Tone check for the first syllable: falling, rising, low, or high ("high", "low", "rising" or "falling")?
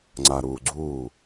low